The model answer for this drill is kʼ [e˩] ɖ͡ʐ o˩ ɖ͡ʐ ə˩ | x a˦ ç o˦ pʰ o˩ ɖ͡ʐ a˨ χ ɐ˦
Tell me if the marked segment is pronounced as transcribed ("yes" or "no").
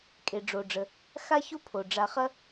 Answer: yes